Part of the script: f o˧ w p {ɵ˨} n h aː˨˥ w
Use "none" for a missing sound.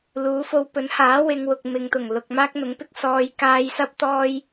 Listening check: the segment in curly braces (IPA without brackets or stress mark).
ɵ˨˥